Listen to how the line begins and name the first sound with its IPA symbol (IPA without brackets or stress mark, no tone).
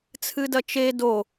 t͡sʰ